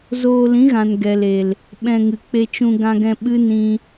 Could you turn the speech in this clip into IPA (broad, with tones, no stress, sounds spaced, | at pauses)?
z oː˧ l ĩ˨˦ ɣ ã˨ n ɡ ɛ˨ l e˨ l | ɓ ɛ̃˧ ŋ ɨ˨ k͡p e˧ t͡ʃ ũ˧ ɡ ã˧ ɡ ɛ̃˧ ɓ ɨ˦ n ĩ˧